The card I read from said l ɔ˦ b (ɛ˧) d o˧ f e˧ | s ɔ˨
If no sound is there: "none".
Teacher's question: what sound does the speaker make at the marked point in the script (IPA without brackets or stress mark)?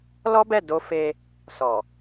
ɛ˦˨